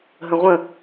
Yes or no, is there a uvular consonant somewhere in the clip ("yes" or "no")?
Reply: yes